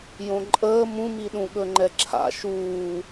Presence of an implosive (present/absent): present